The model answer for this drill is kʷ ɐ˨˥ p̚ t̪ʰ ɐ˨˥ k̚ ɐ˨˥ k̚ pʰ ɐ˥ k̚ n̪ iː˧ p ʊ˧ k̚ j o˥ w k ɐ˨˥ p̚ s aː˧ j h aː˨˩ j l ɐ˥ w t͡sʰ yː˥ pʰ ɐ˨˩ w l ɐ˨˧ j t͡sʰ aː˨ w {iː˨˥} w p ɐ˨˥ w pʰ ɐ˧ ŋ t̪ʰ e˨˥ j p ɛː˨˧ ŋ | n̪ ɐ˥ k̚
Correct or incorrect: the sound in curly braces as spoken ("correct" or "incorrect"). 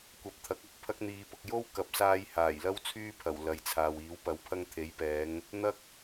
correct